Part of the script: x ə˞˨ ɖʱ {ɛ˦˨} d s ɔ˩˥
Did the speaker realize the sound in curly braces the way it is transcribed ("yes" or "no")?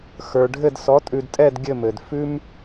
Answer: no